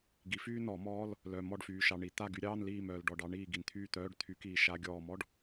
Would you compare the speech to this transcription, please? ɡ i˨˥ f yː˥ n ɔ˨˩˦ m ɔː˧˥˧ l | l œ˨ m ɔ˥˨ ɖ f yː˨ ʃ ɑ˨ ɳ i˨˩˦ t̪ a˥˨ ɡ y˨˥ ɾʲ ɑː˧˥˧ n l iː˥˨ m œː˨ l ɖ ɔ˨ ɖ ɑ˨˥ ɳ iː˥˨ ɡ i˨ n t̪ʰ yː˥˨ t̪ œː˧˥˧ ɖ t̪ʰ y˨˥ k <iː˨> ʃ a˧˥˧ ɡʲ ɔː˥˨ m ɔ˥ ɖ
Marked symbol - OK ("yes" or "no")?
yes